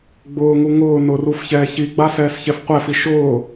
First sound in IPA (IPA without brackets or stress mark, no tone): ɡ͡b